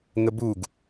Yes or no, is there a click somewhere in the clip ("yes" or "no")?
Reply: no